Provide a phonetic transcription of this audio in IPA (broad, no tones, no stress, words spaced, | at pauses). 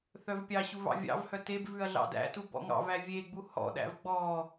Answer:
θœvpʲɑɕuv ɑ̰vʲɑ̰vhœ teb vʉɐ̯ɮɑ̰dæ̰tu bɔ̰ŋɑ̰væ vʲeɡ͡bu hɔ̰ɗæ̰v ɡ͡bɔ